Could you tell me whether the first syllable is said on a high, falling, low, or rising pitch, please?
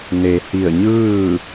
low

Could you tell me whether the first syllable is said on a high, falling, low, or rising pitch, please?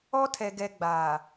high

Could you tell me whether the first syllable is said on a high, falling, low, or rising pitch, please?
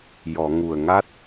low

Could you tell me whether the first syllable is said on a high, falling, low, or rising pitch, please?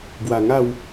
low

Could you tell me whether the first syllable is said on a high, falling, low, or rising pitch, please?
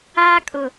high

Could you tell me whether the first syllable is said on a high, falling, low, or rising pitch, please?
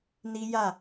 high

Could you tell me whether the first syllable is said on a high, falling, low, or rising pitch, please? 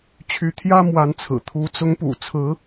rising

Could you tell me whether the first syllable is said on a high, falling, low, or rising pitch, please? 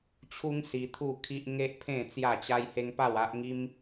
high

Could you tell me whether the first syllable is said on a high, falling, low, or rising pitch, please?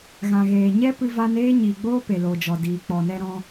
low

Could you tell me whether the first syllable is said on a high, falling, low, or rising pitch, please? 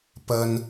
low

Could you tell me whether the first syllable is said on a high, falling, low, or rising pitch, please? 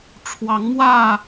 rising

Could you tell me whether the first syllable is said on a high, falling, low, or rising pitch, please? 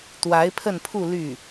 rising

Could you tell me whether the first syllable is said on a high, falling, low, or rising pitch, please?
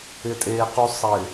low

